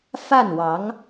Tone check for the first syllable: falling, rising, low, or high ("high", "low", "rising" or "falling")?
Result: falling